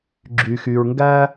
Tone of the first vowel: low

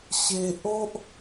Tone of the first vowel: high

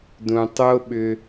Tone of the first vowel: low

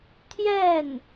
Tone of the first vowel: falling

